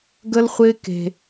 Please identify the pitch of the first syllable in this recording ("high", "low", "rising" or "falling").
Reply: high